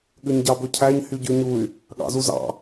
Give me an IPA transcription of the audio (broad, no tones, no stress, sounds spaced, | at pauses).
ɠ ʉ ɲ ɟ ɑ b ɵ cʰ æ ɲ h y ɟ ʉ ɲ u y̯ | ɠ ɑ̰ z u z ɑ̰